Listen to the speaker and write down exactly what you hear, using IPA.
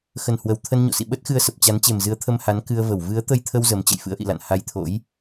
x ə˧˩ n h w ə˨˩ w t̪ʰ ə˧ n ɲ o̰˧˨ s ḭ˧˨ ɓ ə˦˥ t̚ x ɨ˧ ə̯ s ə˨˩ p̚ t͡ɕ a˨˦ n t͡ɕ e˨˩ m z ɨ˨˦ ə̯ t̪ʰ ə˧ m h a˨˦ n k ɨ˧ ə̯ v ə˧˩ w v ɨ˨˦ ə̯ t̪ ə˧ j t̪ʰ ə˧ w z ə˨˦ m t͡ɕ ə̰˧˨ j f ɨ̰˧˥ ə̯ ʔ ḭ˧˨ l a̰˧˨ n h a˧ j t̪ʰ o̰˧˥ j

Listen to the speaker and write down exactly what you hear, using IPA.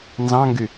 n z ɑ̃ ŋ ɡ y

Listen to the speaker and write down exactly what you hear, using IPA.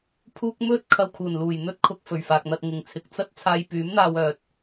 pʰ uː˧ k̚ m ɵ˧ t̚ kʰ ɐ˨ w kʰ uː˨˩ n l uː˨˩ j n̪ ɵ˥ t̚ kʰ ʊ˧ k̚ f ɵ˨˩ ɥ f aː˨ k̚ n̪ ɐ˧ t̚ ŋ ɪ˨ ŋ t͡sʰ ɪ˧ k̚ t͡s ɐ˥ t̚ t͡sʰ aː˧ j p yː˨˥ m n̪ aː˧ w œː˧ t̚

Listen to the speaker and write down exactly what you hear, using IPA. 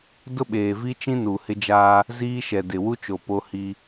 d ʊ˦ ɓ eː˨ v i˦ t͡ʃ ĩ˦ n u˨ h ɪ˦ d͡ʒ aː˦ | z iː˦ ʃ ɛ˨ d ɪ˨ w u˦ t͡ʃ o˨ p o˦ h i˦

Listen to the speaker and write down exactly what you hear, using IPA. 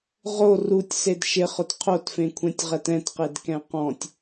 ʁ o r u tʲ s e d ʃ ɪ χ ʊ t qʰ o t f ẽ kʷʰ ɛ̃ tʲ ʁ ɛ t ɛ̃ t q e d k ɛ̃ q ɔ̃ tʲ

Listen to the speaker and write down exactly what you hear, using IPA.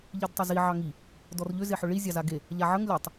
ʎ i d tˤ ʏ z i ʕ ɑ ŋ i | d ɔ r ʎ ʏ z e ħ ʏ ɭ i zʲ ɑ z a ɡ e | ʎ a ʕ ə ŋ lʲ ɔ tˤ

